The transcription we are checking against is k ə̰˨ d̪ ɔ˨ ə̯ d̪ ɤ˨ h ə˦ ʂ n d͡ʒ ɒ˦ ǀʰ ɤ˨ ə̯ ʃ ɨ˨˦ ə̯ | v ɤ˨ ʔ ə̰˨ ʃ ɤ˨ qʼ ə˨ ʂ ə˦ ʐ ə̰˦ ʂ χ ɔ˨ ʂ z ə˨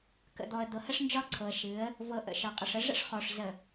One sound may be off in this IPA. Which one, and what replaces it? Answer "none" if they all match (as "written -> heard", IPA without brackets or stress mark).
none